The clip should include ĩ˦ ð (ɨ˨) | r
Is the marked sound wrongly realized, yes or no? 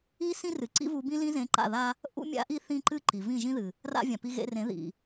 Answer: no